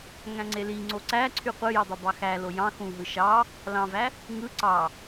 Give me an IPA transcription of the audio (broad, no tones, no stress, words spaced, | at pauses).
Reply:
ŋæ̃ŋ͡ǀeliŋ͡ǀo ǀæ ǀʰyqʷɯji dˤøbɑxælo jɑ̃ xũɦɯ ʃɑ | lɑ̃væ | ŋɯ ǀɑ